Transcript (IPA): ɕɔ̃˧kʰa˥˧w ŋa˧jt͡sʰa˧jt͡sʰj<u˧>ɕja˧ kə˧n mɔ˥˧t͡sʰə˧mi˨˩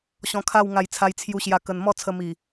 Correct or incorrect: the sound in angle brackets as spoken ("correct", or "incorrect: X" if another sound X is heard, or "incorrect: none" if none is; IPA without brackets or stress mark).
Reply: correct